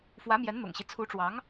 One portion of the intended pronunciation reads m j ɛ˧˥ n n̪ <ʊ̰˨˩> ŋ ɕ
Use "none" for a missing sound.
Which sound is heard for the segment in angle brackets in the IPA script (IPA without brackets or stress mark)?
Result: ʊ̰˨˩